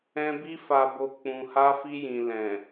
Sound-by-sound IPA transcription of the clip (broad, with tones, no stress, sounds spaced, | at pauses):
ɛ̃˧ b i˧ f a˨ b o˨ k͡p ũ˨ h a˧ f i˧ j ĩ˨ l ɛ̃˨